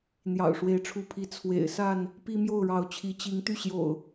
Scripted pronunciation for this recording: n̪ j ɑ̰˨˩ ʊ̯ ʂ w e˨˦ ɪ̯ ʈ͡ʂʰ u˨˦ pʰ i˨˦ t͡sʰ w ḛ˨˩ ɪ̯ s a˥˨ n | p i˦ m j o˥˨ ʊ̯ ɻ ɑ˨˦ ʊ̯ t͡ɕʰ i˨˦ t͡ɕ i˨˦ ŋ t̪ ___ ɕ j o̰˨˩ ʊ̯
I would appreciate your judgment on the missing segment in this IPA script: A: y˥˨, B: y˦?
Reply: A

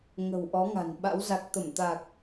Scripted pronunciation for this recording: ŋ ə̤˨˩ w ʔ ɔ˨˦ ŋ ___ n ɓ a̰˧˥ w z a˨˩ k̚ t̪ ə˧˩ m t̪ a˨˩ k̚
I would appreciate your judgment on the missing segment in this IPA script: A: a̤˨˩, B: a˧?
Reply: A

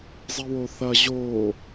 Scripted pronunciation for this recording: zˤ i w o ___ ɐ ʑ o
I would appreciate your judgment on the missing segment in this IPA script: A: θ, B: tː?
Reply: A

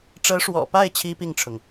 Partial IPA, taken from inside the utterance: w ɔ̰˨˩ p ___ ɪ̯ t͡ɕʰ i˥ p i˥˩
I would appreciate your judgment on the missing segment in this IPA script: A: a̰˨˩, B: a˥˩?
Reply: B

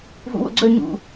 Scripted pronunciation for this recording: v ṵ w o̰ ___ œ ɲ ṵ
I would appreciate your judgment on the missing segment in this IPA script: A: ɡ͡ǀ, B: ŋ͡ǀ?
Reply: A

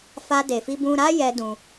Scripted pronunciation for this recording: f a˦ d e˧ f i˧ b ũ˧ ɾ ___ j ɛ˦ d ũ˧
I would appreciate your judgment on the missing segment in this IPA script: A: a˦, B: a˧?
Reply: A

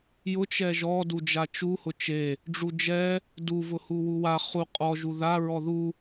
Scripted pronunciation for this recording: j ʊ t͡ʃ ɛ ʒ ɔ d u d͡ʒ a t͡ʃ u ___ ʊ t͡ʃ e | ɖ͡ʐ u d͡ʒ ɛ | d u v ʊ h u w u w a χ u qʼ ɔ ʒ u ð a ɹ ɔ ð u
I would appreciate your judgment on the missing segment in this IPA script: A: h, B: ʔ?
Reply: A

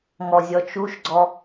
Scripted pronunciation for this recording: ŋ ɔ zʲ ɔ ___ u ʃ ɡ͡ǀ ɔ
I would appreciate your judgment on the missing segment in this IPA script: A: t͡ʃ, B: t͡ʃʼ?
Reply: A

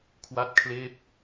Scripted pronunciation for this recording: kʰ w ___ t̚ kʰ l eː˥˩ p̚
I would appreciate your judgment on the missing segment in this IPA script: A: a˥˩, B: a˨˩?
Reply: A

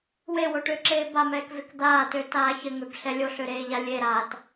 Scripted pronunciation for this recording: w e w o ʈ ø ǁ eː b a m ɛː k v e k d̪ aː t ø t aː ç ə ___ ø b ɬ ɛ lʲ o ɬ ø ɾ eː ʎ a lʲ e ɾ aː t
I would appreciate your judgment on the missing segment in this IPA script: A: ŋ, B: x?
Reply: A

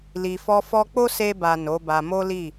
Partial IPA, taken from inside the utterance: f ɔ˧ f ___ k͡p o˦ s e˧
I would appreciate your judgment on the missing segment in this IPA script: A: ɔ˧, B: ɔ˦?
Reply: A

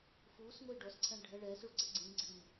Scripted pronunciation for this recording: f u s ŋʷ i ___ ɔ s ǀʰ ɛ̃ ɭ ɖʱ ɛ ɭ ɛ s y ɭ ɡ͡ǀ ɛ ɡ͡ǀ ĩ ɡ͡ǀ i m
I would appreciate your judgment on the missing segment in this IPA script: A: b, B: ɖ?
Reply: B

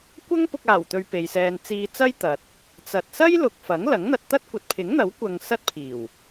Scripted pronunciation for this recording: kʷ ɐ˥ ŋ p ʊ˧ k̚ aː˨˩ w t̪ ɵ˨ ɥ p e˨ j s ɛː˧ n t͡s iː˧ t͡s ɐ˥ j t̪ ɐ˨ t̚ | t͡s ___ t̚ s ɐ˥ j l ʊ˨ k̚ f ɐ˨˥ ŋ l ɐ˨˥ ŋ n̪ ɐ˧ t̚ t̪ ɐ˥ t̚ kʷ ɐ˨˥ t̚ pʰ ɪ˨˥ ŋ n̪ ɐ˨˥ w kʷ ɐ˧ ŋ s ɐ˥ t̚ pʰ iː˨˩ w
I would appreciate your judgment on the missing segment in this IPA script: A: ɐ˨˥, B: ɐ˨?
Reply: B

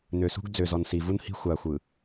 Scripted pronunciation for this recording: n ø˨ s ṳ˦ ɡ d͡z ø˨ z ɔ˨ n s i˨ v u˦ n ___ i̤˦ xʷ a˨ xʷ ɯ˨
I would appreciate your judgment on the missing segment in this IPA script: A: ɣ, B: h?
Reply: B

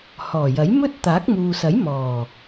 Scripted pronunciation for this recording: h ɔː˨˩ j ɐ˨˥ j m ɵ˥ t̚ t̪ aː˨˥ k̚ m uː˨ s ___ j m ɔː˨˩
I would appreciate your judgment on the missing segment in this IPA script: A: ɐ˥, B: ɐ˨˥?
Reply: B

